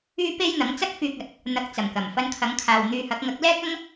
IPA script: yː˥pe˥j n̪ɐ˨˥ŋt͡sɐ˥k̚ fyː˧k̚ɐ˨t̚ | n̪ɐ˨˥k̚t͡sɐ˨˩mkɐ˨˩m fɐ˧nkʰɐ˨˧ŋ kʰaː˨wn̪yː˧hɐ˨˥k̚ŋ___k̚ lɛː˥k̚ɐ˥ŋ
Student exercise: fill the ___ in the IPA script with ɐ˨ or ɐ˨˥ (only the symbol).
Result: ɐ˨˥